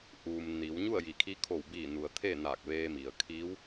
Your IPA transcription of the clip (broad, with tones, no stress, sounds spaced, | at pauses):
ʔ uː˩ m n i˩˧ w ɲ u˥˨ ə̯ j i˩ kʰ i˧˥ kʰ o˧˩ w b iː˧˩ n u˩ ə̯ t̪ʰ e˥˨ n aː˧˩ k̚ ʋ eː˧ m i˩ ə̯ kʰ iː˧˥ w